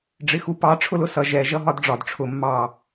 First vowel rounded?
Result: no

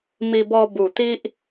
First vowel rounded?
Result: no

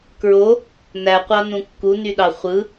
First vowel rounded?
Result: yes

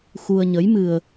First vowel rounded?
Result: yes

